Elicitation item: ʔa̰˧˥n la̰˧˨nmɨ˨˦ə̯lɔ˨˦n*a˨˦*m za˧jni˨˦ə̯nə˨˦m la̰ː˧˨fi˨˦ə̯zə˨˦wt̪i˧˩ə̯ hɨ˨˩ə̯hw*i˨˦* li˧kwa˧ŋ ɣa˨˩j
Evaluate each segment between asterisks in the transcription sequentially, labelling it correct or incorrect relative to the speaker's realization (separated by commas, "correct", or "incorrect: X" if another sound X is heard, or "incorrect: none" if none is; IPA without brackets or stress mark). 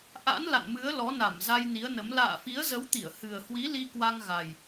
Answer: incorrect: a˧˩, correct